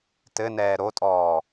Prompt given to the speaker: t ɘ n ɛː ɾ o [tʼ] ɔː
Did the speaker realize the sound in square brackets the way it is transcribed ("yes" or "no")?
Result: yes